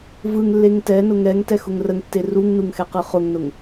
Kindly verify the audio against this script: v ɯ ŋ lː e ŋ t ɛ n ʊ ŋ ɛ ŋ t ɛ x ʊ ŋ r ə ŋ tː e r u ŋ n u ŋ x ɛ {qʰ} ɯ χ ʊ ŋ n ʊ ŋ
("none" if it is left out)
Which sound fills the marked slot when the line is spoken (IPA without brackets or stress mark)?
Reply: q